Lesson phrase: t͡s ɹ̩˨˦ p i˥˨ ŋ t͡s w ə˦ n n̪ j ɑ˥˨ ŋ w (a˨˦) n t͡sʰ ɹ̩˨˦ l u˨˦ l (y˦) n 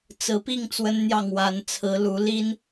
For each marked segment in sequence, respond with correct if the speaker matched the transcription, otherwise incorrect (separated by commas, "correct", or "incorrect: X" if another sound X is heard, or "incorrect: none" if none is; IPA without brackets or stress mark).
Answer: correct, incorrect: i˦